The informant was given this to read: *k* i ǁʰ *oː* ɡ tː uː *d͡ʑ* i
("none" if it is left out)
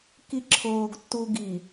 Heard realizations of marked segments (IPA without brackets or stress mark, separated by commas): k, oː, ɡ